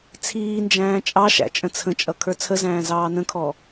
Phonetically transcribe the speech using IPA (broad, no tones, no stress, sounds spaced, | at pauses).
t͡sʰ iː n d͡ʒ æ̃ː t͡ʃʼ ɑ ʃ æ̰ t͡ʃʼ ə̃ t͡sʰ ə̃ t͡ʃʼ ʌ kʰ ə˞ t͡sʰ ə z æ̃ː z ɑː n ə̃ kʰ ɔ